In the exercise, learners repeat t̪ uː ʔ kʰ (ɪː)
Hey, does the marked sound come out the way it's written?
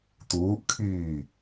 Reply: no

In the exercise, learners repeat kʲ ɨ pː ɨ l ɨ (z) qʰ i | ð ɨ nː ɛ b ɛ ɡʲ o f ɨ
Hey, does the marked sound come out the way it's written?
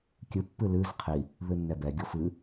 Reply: yes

